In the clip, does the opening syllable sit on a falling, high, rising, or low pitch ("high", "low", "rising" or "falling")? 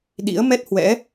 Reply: rising